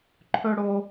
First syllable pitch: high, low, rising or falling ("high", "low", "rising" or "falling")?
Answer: high